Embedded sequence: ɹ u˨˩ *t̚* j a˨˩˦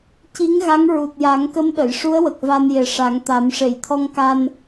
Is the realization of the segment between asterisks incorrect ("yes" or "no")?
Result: no